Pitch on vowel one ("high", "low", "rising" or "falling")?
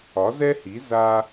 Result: rising